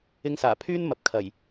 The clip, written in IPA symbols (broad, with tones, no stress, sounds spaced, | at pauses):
ɪ˧ ŋ s aː˨˩ pʰ yː˥ n m ɐ˨ p̚ kʰ ɐ˨˩ j